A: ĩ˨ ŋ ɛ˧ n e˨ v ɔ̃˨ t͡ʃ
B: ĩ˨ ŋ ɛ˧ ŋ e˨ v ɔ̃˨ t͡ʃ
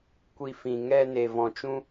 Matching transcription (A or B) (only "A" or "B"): A